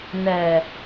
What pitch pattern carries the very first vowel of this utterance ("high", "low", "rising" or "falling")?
low